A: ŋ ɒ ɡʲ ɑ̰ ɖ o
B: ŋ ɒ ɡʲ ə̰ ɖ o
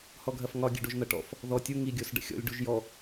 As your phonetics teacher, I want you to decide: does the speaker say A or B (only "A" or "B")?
B